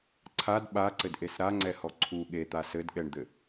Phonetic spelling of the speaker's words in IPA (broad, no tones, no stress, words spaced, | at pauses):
ǀʰad ɓaǀɘdʔes ɾaŋ͡ǀɛhɔ ǀʰu ɠet̪a sɘdɠɛɳd̪ɘ